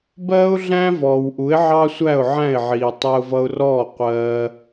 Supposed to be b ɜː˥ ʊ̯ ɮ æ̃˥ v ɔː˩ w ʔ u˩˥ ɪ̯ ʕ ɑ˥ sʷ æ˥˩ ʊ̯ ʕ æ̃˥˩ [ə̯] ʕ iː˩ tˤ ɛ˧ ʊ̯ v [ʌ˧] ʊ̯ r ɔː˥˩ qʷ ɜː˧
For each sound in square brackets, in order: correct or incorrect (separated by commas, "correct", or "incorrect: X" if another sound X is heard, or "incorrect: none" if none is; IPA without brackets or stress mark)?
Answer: incorrect: ɪ̯, correct